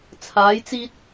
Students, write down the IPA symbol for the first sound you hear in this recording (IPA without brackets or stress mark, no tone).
t͡sʰ